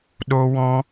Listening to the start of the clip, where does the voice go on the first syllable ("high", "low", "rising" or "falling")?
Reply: high